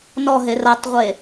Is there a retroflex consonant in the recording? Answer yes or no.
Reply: no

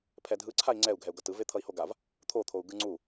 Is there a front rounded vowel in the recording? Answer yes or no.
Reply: no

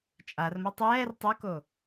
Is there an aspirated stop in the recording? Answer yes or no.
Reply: no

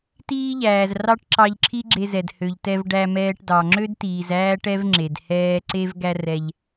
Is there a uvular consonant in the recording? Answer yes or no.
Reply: no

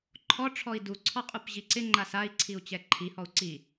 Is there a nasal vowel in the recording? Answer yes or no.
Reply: no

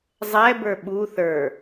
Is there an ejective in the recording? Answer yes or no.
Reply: no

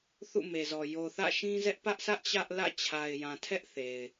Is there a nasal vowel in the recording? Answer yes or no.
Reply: yes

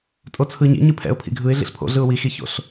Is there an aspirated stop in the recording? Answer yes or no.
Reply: yes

